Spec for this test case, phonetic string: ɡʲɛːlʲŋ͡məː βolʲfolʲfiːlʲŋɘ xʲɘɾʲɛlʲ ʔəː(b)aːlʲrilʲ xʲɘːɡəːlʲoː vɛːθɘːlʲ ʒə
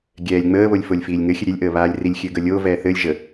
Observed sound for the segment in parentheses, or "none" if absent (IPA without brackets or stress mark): β